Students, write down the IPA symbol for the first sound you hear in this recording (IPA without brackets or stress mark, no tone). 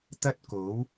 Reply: t̪